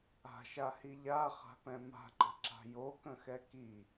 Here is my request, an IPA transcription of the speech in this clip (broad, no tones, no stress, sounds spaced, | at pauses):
a̤ ʃ a h i ʎ a χ a̤ p ɛ̃ m a̤ ǃ ə̤ ǁ a̤ j o k ə̃ x ɛ k i